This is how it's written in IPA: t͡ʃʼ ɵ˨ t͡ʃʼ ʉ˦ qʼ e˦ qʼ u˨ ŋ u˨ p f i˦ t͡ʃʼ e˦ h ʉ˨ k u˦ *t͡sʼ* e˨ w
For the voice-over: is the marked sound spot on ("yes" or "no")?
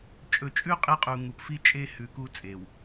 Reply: yes